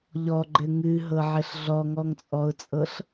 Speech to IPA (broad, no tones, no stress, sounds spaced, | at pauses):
ʎ ɔ ɡ͡ǃ ɘ ŋ ɨ ɦ ɤ ʕ ɘ ɬ ɮ ɔ ŋ ɔ ŋ t͡sʼ ɔ ʊ̯ t͡sʼ ɤ ɬ